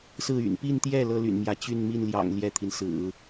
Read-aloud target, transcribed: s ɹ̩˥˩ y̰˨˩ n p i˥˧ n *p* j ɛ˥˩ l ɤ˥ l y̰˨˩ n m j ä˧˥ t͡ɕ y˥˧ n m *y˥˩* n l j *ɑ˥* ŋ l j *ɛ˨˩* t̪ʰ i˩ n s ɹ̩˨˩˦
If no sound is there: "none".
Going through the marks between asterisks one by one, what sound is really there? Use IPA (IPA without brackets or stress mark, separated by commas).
t̪, i˥˩, ɑ̰˨˩, ɛ˥˩